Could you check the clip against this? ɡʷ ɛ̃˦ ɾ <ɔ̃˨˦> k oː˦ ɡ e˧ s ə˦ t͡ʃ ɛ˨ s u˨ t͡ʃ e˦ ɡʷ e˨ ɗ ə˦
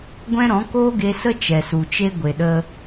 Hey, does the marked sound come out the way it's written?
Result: yes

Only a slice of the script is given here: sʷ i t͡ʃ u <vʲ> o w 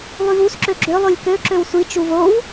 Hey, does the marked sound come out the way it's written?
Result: no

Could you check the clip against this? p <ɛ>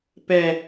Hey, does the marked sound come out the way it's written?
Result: yes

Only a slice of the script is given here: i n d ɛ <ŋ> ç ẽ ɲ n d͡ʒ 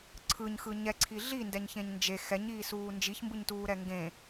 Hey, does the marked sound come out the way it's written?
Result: no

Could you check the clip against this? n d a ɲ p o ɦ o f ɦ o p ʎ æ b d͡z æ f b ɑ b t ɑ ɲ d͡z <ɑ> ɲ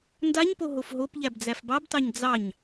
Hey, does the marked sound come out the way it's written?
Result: yes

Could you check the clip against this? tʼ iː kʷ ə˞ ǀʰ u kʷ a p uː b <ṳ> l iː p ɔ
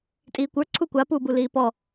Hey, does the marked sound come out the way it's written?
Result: no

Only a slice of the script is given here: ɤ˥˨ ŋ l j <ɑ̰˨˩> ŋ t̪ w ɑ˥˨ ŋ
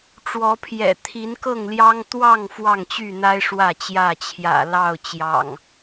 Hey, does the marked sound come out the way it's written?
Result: no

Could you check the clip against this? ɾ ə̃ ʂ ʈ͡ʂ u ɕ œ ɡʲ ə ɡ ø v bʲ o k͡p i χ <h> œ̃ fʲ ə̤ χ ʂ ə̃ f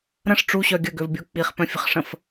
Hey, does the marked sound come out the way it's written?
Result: no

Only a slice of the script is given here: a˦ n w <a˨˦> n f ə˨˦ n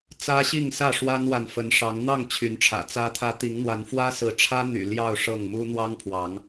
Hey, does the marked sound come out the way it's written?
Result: no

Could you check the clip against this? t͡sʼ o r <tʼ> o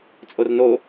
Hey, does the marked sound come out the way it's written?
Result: no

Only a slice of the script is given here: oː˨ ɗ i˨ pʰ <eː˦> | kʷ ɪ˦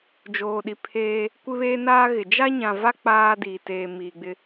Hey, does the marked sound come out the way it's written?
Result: yes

